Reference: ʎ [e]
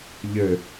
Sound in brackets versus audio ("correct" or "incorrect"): incorrect